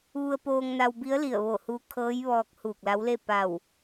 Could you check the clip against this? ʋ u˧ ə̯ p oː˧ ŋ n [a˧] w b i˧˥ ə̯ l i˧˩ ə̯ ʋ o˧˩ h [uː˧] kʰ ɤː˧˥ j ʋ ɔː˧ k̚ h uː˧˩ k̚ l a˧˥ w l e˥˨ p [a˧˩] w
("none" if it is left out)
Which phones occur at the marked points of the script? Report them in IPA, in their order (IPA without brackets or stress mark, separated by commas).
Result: a˧, uː˧, a˧˩